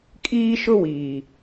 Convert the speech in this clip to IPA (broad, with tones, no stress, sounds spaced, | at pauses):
kʼ iː˦ ʃ ʊ˦ w iː˨